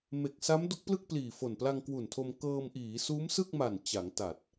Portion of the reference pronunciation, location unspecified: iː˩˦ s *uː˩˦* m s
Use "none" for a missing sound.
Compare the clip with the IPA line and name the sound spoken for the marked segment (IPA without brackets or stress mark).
uː˦˥